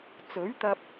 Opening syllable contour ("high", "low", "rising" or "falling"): rising